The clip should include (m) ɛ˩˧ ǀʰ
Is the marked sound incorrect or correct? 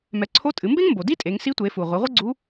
correct